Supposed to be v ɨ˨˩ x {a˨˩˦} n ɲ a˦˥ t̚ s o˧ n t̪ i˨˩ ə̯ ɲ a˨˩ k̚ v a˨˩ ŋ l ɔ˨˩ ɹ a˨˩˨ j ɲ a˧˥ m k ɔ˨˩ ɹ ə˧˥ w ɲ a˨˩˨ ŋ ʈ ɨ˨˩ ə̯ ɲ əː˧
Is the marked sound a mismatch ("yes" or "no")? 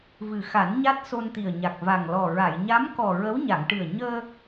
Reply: no